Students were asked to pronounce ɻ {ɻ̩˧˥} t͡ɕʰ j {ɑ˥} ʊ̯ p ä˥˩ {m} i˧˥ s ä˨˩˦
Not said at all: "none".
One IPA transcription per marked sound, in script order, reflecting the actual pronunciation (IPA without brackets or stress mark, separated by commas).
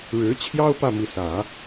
ɻ̩˧˥, ɑ˥, m